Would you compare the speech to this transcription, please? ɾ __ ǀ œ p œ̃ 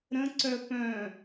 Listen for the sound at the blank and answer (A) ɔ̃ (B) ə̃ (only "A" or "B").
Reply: B